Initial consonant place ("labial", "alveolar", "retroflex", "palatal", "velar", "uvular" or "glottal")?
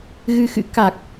velar